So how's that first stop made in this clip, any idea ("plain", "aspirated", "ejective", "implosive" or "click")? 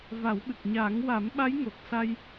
implosive